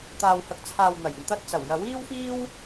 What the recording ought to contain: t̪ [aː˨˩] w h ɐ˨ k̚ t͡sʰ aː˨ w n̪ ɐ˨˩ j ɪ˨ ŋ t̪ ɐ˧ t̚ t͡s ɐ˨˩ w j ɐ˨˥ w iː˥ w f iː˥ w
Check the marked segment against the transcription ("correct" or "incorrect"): incorrect